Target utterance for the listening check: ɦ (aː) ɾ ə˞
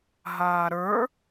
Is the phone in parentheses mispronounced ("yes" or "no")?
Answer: no